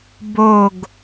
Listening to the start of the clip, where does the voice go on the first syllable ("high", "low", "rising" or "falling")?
low